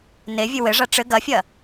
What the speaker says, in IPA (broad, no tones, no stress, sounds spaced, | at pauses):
n e vʲ ɨ w ɘ ʐ a ʈ͡ʂ ɘ ɡ ɐ fʲ ɐ